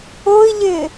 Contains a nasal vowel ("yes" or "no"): no